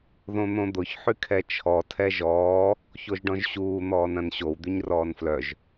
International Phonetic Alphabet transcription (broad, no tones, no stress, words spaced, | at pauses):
ðõn̪õd̪ʊç ħykʰɛt͡ʃʰɔ tʰɛʒɔː | çoʒɖɔ̃ʒɕuː n̪ɔːnɐ̃nɕow d̪yɲrɔːnflœʒ